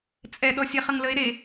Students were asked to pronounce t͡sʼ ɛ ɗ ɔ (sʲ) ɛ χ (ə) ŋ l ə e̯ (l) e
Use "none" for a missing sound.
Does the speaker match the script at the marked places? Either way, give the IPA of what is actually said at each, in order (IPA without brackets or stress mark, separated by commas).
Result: sʲ, ə, ɾ